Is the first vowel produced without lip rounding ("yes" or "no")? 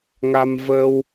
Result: yes